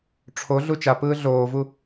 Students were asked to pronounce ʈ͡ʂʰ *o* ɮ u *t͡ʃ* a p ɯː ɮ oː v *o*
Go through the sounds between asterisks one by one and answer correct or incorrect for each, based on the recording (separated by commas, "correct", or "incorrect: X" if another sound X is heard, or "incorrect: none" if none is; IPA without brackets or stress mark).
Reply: correct, correct, incorrect: u